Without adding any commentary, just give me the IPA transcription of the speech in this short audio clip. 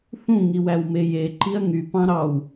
θ ũ ŋ i w æ w m e j e ǃ i ɐ̯ ŋ y p ɑ̃ ɾ ɑ w

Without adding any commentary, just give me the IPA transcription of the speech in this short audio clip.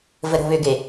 v ə ɾ o̤ β ʏ ɡ e

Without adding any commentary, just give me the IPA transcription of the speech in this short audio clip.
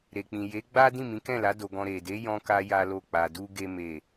ɾ e˨ k͡p ĩ˨ j e˨˦ ɡ͡b a˦ d ĩ˦˨ m ĩ˨˦ k ɛ̃˦˨ l a˨˦ d o˧ ɡ ɔ̃˧ ɾ e˨ d e˨˦ j ɔ̃˧ k a˧ j a˦ l o˦˨ k͡p a˧ d u˦ ɡ e˦ m e˦˨

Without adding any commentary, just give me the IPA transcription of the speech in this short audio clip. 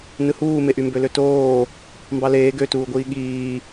n ɯ h uː m e ʔ y m b ø l ø t oː | m b ɑ l eː ɡ ø t uː ɡʷ iː ɠ iː

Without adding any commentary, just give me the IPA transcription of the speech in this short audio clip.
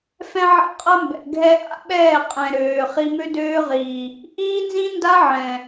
f ɛ̃˦ ʕ a̰˦ qʼ ɐ˦ m b ɛ̰˨ ɡʱ ɛ˦ ʔ a̰˦ ɓ ɛː˦˨ qʼ ɛ̃˨ ɾ øː˨ χ i˦ m ø˦ d øː˦ ʁ iː˨ | ʔ iː˦ n z ĩ˦ n d a˦ ʕ ɛ̃˨

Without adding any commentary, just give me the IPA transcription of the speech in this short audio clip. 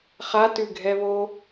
χ a t ʉ ɡʱ ɛ β o

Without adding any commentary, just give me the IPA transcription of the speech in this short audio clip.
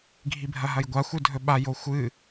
ɡʱ i bʱ ɐ ɦ ɐ j ɡʷ a xʷ ɨ dʱ ɵ ɓ a j o xʷ ɨ

